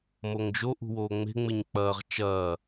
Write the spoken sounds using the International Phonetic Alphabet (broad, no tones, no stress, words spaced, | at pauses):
moŋd͡ʒo ʔṳwoːŋ͡me̤ ŋ͡mɪɲk͡pɐːʁ t͡ʃɐː